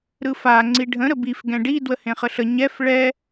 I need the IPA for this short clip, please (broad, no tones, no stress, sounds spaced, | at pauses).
ɾ ɯ f a ŋ͡ǀ i ɖʱ ə̃ ɾ ə b i f ɡ ɛ̃ ɖ i d w ə h ẽ χ ə ɬ ə ɲ ɛ f ɭ ɛ